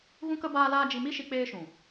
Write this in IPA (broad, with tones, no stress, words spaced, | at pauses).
ɣũ˦kə˦ baː˦laː˦ d͡ʒi˧mi˦ʃi˧ k͡peː˦ʃũ˨